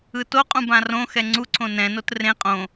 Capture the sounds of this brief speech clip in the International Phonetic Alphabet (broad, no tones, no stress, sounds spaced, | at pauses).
ɯ t o qʼ ũ b ã r õ x ɛ ŋ͡ǀ u ǀʰ õ n ɛ̃ n o t r ẽ qʼ õ